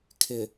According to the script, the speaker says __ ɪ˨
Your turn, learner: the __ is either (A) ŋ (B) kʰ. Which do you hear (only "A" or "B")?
B